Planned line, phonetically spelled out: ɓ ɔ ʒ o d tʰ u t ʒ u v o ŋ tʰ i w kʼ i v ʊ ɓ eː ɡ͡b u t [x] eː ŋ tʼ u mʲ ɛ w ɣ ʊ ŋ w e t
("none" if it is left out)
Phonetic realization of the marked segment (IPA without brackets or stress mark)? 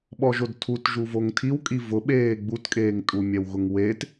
kʼ